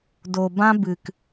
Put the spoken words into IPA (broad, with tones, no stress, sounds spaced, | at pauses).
d o˨ b ã˦ b ɨ˨ k